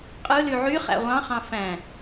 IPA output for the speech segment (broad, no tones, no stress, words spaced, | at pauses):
qʼɯly ʕyχæ̰ ʁʷɑ̃χɑ̃ fæ̃